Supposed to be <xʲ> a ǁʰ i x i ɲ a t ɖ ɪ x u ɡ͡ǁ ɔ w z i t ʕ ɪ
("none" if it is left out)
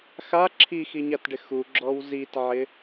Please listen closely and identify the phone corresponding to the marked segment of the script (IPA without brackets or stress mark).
x